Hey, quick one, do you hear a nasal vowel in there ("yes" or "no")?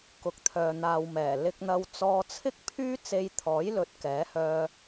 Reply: no